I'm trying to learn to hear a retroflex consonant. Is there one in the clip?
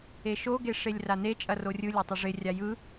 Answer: yes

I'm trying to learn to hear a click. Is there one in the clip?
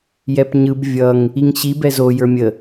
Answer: no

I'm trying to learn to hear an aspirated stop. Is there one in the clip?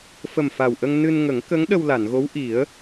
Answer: no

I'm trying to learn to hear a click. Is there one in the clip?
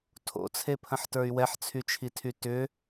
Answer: no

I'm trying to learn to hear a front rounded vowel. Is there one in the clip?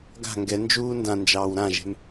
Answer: no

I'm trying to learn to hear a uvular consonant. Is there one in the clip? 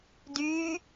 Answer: no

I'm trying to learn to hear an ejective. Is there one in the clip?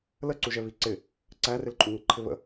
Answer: yes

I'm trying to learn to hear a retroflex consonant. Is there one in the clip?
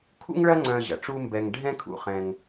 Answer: yes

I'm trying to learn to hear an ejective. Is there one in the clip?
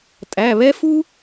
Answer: yes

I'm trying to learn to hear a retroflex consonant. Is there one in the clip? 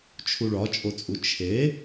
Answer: yes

